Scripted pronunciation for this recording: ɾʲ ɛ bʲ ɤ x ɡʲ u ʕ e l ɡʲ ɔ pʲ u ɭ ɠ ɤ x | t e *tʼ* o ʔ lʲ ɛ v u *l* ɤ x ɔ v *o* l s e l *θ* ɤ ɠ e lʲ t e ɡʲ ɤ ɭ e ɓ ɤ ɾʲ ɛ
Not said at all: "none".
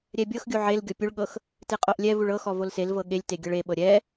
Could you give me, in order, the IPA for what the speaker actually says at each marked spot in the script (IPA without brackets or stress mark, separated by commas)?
qʼ, ɭ, o, v